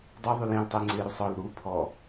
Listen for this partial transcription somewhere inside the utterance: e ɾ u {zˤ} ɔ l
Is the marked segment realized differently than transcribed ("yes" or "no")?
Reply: yes